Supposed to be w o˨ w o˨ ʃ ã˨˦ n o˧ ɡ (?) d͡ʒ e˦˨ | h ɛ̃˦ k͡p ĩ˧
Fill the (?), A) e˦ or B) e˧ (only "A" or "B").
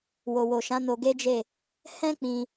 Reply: A